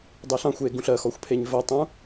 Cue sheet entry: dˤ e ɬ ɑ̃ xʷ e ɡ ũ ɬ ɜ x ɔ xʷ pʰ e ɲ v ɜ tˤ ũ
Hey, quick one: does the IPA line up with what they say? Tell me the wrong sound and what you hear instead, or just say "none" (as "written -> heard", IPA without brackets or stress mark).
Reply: none